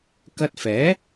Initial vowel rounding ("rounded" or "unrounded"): unrounded